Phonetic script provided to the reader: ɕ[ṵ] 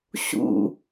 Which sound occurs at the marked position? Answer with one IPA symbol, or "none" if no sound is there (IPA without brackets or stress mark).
ṵ